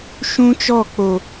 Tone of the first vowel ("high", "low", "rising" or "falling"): high